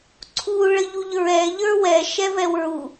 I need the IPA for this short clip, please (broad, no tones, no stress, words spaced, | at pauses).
ǀʰu ɭəʎuʎɹɛ ʎə˞wɛ ʃɛvɛwɹu